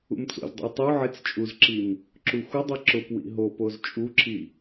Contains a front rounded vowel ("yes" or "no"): no